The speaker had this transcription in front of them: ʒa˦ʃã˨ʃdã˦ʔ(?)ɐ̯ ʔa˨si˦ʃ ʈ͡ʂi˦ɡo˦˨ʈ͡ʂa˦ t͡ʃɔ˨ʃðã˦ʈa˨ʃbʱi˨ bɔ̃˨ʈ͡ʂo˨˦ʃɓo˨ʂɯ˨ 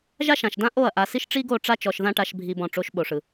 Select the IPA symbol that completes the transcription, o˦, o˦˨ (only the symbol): o˦˨